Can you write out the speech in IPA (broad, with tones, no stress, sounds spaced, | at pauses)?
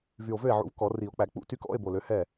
v y˨˩ o̯ v ø˥˩ e̯ ʕ ṵ˩˥ v k ɔ˨˩˦ r i˨˩˦ o̯ k͡p æ˨˩˦ k͡p ṵ˧˥˧ t y˧˥˧ k ɔ̰˧˥˧ e̯ b o˨˩ l ø˩˥ h ɛ˥˩